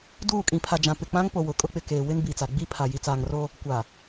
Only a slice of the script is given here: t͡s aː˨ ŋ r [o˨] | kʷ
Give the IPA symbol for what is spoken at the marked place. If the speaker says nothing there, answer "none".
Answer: o˦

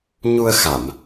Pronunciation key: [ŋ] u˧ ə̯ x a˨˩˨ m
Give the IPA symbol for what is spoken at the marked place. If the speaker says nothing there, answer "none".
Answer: ɲ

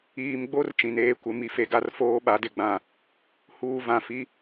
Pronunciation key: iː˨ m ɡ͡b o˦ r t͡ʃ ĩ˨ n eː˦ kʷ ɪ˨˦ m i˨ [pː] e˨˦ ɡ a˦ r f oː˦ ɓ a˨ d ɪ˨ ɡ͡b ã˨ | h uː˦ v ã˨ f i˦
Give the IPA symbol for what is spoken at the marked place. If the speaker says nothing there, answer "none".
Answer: f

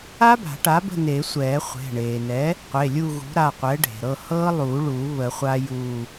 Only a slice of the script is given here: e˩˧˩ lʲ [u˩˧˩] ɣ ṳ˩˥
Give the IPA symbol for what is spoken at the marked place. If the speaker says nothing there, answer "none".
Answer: u˦˨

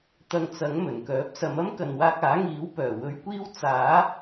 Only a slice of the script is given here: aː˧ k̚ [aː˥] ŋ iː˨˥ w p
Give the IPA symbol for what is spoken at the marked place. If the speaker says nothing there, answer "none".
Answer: aː˨˥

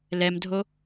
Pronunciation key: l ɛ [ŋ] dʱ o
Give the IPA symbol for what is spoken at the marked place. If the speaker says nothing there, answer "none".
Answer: m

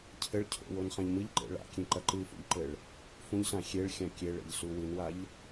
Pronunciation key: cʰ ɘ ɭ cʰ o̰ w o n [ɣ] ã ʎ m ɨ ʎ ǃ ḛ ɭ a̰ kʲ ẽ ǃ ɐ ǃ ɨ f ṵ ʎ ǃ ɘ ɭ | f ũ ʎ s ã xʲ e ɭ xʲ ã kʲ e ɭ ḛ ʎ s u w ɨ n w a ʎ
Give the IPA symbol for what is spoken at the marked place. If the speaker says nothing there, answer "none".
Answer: χ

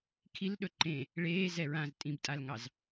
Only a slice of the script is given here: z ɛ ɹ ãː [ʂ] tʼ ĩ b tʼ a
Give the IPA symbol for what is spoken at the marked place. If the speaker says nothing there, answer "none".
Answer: z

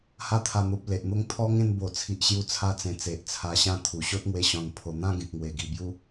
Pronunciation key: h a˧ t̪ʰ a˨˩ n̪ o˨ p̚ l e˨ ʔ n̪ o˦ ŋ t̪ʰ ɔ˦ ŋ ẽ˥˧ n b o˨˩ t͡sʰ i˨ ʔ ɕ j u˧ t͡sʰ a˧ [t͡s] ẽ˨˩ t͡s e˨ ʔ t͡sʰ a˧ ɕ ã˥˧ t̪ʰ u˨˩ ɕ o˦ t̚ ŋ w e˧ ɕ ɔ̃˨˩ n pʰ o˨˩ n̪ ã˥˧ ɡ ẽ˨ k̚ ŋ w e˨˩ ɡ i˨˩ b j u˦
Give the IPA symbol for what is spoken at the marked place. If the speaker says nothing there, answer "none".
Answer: t͡s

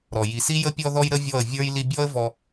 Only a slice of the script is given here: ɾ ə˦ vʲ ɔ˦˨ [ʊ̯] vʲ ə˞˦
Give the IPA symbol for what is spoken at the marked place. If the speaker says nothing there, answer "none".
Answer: ə̯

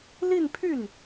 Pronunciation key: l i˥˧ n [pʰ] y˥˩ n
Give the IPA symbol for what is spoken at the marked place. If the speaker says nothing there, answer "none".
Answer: pʰ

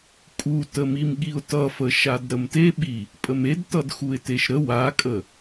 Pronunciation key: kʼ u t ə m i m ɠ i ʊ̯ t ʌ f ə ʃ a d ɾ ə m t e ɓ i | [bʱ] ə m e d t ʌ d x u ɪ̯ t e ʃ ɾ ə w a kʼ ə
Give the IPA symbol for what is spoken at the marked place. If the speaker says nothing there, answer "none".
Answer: pʼ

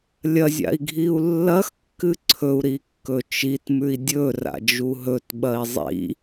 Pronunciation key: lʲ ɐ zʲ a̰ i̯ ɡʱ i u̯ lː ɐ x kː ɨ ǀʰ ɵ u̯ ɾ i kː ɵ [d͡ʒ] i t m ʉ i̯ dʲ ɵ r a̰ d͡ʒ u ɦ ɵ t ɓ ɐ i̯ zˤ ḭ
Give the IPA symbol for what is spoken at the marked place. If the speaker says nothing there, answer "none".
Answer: t͡ʃ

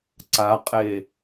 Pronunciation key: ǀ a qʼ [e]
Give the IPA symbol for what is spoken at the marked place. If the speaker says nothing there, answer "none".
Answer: e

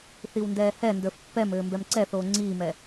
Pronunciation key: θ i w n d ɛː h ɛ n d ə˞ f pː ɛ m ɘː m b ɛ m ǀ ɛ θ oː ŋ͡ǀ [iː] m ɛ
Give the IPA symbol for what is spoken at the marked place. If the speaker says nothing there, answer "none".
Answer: iː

